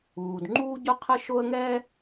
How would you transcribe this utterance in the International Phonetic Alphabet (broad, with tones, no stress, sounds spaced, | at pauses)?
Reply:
uː˩ d ŋ͡ǃ uː˥ ɟ ʊ˥ qʰ ə˥ ʃ o˥ ə̯ ŋ ɛ˥